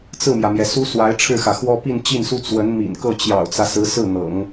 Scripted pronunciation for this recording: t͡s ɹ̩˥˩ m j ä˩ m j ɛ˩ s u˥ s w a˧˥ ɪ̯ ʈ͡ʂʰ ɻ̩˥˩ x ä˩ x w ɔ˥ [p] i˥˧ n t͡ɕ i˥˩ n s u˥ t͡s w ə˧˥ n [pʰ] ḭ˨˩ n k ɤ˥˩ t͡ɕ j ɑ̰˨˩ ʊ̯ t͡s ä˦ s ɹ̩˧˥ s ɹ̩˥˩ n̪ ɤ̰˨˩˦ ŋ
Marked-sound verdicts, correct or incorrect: correct, incorrect

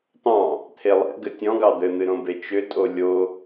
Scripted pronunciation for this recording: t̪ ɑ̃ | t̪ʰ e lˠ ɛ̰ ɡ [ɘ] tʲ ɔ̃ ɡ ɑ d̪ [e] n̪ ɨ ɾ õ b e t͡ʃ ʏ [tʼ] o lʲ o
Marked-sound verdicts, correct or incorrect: correct, incorrect, correct

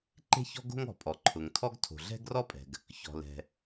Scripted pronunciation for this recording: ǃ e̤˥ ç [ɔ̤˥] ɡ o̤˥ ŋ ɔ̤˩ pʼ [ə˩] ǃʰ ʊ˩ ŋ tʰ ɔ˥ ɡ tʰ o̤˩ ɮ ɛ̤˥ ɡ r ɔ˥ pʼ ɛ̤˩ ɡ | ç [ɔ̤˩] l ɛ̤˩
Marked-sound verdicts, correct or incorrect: correct, incorrect, correct

